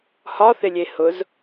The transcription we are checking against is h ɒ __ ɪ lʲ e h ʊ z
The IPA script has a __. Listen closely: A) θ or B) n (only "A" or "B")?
A